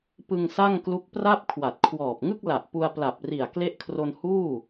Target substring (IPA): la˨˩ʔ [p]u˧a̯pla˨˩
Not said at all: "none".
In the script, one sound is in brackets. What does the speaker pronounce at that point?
p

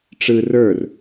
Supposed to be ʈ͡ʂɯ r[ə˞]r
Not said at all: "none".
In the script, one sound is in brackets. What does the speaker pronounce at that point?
ə˞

